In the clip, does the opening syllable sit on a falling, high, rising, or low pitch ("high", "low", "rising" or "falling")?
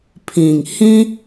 low